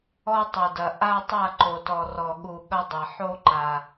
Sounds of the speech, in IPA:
ɔ˦ tˤo˨dɐ˨ʔa˦tˤa˦˨ ǃo˨tɔ˨ rɔ˨ɠu˨ ɠɐ˦dˤa˨ ħo˦ǃa˨

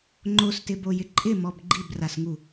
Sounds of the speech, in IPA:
ŋ͡ǃostɪbojɪ ǃʼɪmɔb ɡ͡ǃibrasŋu

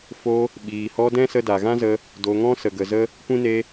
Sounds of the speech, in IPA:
fo˧ | ɓiː˨hɔ˧ dɛ̃˦sə˧da˨ɣã˦ zə˧ | do˨ ŋɔ̃˦sə˨ɡə˨zə˦ | kʷĩ˦ ne˧

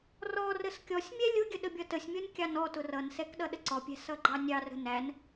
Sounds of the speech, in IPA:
rɔ rəskʲɔsʲmʲɛ lʲʊɡʲə ɗəbʲʌtəsʲmʲɔnʲ kʲɑnɔtʊ rʌnsɛk ɗʌɗəǀɔpʲæ̤ sʌɡ͡ǃɑnʲɑrə̤ næn

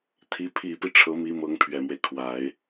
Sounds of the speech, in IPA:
t̪ʰi˧˥ pʰi˨˩pi˦ ʈ͡ʂʰɤ˧˥mi˧˥ mɤ˧˥ŋpʰɥɛ˨˩mwe˦ɪ̯ kʰwa˨˩˦ɪ̯

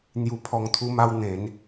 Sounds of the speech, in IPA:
n̪ju˧pʰɔ˧ŋt̪ʰu˦ma˦w n̪ẽ˨˦n

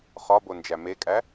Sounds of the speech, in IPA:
χɒbond͡ʒæ mekʼæ

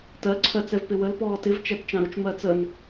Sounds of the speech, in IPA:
tɜ ǀʰɜt͡sɛvpɪwəl pɔːtɪv t͡ʃætt͡ʃɑ̃ɾʊt͡ʃ mɜt͡sən

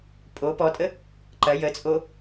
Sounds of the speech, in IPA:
pʼo pɔtʼə | ǃɐ jət͡sʼo

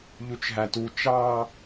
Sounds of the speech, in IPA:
ʎut͡ʃɦætu t͡ʃɑ

